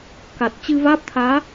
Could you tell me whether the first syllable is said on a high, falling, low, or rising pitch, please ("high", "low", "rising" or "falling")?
low